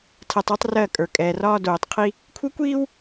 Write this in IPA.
tʰ ɜ˨ tˤ e˦ tˤ r ɜ˦˨ kʼ ə˞˨ kʼ ɛː˨ r ɒː˦ d oː˨ tˤ qʰ i˦ | kʷʰ ə˦ kʷ iː˦ w

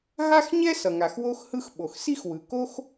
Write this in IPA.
ɦ a˥ x ɲ ɛ˥ s ʌ˩ ŋ a˩ x w o˥ x h ɯ˥ x ɓ o˩ x s i˥ x w ɯ˩ k o˥ x

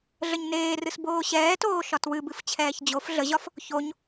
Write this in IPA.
ɮ ə ɲ n eː r ɨ s b oː ɕ ɛː t oː ʃ ɒ t w ɨ b ɨ f t͡ɕʰ ɛː ç d͡ʑ o f ɮ ə ʑ ɒ f | ç o ɲ

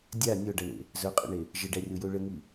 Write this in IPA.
dʲ a nʲ ɔ ɖ ʌ ɳ ḛ | z œ qʼ ə̰ ɳ e | ʒ ə ɖ æ rʲ o j o ɭ ə ŋ i

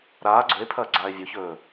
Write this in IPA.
ɾ aː ɡ͡ǀ ɵ e̯ pʰ ɐː ɡ͡ǀ aː e̯ vʲ o ç ɵː

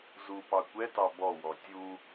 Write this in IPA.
z u p ɑ kʷ ɛ t ɑ b ɔ w ɔ tʲ u

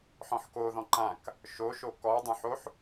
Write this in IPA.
ħ ɔ̃ ħ k o ð ɔ̃ ǃ ã k | ʃ o ʃ o k ɔ dˤ õ ħ o ħ

